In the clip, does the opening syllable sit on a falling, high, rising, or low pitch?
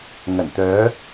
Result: low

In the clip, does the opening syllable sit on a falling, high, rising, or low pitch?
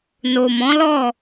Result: low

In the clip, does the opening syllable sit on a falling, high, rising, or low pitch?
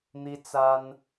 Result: high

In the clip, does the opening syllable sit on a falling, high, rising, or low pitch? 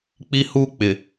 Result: high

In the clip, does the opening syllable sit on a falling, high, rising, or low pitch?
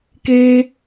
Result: high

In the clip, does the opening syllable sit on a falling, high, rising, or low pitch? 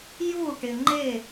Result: falling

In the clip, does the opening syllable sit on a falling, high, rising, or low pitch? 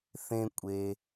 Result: low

